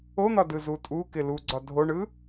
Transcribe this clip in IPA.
o n̪ ɒ d ɯ z u tʼ u k ɪ l u ɡ͡ǀ ɒ dʱ o ɳ ɯ

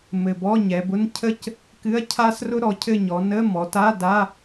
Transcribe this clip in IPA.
m ɘ˨˩ b ɔ˧˥˧ ɲ ɛ˩˧ b ʊ˧˥˧ n cʰ ə˥ c | k ɨ˧˥˧ ɐ̯ cʰ a˥ s r ʊ˥ ɾ ɔ˩˧ cʰ ɘ˦˨ ɲ ɔ˩˧ n ə˧˥˧ m ɔ˩˧ t a˧˥˧ d a˧˥˧

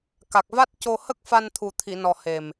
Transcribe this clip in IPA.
k a˨˩ k̚ v a˦˥ t̚ c o˧ h ə˦˥ k̚ f a˧ n t̪ʰ u˨˩ t̪ʰ i˨˩˨ n ɔ˨˩ h e˨˩ m

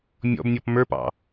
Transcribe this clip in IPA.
mʲ ɔ̰ b nʲ ɔ p m ə˞ p ɑ̰

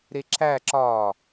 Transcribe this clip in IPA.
ɾ e ǁ æ ǁ ɒː

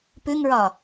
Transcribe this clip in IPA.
p ʉ ŋ ɹ ɒ

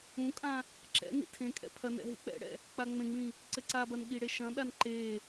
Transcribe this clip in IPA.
ũ kʼ ã | ǁ ɛ̰ n ḭ tʰ ẽ kʼ ɛ̰ pʰ ɐ n ɛ̰ ɦ ḭ k͡p ɛ̰ ɽ ɛ̰ | k͡p a ŋ͡m ẽ ŋ͡m ĩ | ǀ ɘ ǀ a b ɐ n ɠ i ɽ e ʃ ɐ̃ ɗ a n ǃ e

